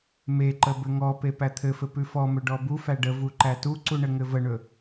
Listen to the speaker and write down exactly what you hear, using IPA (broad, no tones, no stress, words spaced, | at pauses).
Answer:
meǃə bɘŋɔpe pæt̪ʰɘfɘ pʉfɔmɵ ɖɔbufæ ɖə vuǃætuǀu ɳɘŋɘvəɳɵ